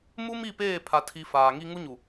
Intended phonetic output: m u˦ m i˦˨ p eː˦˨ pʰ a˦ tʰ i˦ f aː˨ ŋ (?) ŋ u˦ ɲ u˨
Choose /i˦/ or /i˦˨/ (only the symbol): i˦